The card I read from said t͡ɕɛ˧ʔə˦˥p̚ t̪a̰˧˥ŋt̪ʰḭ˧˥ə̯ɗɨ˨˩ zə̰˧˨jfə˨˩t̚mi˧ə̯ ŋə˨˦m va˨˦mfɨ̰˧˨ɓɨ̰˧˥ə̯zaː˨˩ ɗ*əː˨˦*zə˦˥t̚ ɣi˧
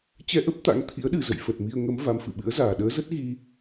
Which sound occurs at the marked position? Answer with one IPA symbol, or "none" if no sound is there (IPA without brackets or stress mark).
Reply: əː˨˦